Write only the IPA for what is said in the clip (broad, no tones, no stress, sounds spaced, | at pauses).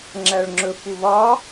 ŋ͡ǁ æ ɭ ŋ͡ǁ ɵ f u β ɒ